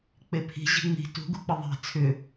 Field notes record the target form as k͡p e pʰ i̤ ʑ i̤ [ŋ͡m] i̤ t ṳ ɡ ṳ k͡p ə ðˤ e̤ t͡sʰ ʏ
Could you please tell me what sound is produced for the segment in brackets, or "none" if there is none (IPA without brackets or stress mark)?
ŋ͡m